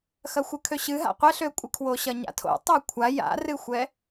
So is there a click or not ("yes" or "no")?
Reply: no